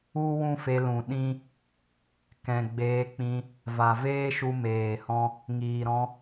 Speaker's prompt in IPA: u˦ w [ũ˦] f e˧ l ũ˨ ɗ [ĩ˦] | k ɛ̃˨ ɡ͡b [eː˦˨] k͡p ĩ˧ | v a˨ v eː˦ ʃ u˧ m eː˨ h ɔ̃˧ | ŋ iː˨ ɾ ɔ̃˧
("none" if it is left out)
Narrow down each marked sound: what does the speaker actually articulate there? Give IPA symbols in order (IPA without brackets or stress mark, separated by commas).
ũ˦, ĩ˦, eː˧